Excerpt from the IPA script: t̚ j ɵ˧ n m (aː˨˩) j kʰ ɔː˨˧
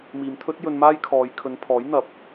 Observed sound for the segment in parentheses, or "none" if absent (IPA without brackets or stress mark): aː˥